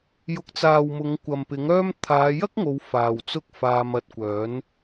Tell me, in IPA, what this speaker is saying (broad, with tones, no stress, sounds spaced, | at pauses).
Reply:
j ʊ˨˥ k̚ t͡s aː˨ w m ʊ˨˧ ŋ kʷ ɐ˨ m p ɪ˨˥ ŋ œː˥ m t̪ʰ aː˨˧ j ɐ˥ k̚ ŋ o˨˧ w f aː˨ w t͡s ʊ˥ k̚ f aː˧ m ɐ˧ t̚ kʷ œː˨˥ n